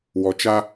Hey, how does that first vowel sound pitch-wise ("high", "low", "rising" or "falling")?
low